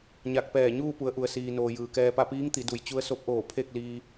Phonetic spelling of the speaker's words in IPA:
ɲ a˧˩ k̚ p ɛː˧˩ ɲ uː˥˨ p u˩˧ ə̯ ʔ u˩ ə̯ s iː˩ n oː˩ j ɯː˩ k ɛː˧ p a˥˨ p iː˧˥ ŋ t̪ i˩˧ d u˩ j t͡ɕ u˧˥ ə̯ s o˧˥ p̚ ʔ oː˧˩ pʰ e˥˨ k̚ l iː˧

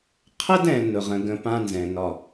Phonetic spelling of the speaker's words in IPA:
qʰ ə˦ d ɛ̃˨ n ʊ˨ ʁ ə̃˨ ɡ ə̃˦ p ã˦ n z ɛ̃˨ n ɒ˦˨

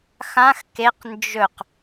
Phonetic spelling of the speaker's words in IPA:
x ã x k e q n d͡ʒ ɵ q

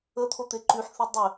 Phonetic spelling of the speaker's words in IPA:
ə t̪ʰ o t̪ e ǃ y ħ θ i dˤ e

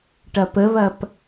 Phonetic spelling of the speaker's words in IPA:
ʈ ɐ p ə β ɐ p

